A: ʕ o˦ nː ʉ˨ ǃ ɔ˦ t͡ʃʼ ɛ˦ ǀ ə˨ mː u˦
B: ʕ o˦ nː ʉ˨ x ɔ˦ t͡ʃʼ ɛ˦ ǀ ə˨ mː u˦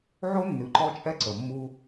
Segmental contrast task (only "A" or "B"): A